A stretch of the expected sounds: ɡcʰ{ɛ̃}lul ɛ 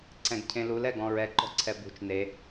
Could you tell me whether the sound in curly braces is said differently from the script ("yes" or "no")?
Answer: yes